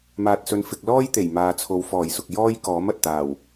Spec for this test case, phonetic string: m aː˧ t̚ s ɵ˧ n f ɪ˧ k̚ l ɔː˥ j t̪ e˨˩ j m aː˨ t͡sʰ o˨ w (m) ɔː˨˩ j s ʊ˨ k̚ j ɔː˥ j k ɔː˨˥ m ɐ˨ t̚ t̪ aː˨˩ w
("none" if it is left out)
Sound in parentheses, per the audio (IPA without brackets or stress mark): f